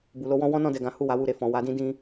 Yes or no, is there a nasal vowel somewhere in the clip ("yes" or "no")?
yes